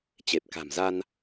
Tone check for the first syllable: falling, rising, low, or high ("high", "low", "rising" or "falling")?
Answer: low